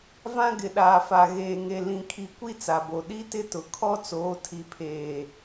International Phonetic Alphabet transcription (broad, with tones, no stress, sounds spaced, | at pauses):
v ã˦ ɡ ɪ˨ ɗ aː˨ f a˨ ɣ eː˨ ŋ e˨ l ĩ˨ kʰ i˨ kʷ i˦ t͡s a˨ b o˨ ɗ i˦ t ɪ˦ t ʊ˨ kʰ ɔ˦ t͡s oː˨˦ tʰ i˨ pʰ eː˨